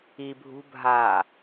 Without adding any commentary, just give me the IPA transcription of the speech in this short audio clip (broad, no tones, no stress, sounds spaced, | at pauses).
i bʱ ṳ bʱ a